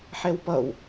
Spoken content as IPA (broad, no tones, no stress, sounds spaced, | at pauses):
ħ ɛ w p ʌ w